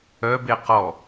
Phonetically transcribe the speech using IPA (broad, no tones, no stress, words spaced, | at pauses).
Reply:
œbe qɔ